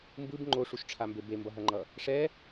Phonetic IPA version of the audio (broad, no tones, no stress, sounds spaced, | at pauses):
m b ɯ b ŋ͡ǃ o ʂ u ʃ ʈ͡ʂʰ a m b e b e m b ʌ ɦ ʌ ŋ͡ǃ ʌ | ʂ ɛ